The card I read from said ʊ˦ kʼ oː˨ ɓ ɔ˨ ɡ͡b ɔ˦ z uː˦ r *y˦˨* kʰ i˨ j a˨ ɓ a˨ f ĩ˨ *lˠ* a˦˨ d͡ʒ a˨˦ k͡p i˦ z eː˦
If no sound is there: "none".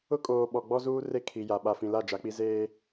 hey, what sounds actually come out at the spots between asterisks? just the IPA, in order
e˦˨, l

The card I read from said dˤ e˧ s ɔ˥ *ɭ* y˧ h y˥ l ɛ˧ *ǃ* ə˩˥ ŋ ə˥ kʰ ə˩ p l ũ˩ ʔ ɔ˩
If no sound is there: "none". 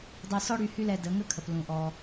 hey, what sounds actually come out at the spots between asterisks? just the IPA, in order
ɽ, d

